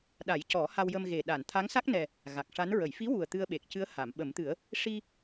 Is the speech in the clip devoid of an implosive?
no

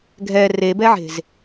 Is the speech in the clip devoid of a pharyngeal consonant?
no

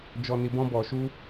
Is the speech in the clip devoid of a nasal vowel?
no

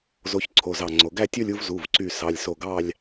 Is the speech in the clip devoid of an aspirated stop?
no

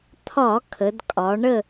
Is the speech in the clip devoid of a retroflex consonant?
no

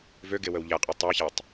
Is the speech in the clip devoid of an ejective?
no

